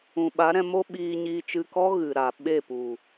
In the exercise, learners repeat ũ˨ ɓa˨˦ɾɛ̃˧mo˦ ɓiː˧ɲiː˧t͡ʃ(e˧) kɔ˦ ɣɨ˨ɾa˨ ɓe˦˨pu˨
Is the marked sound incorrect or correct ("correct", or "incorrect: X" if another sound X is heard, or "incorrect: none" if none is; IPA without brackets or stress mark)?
incorrect: ɨ˧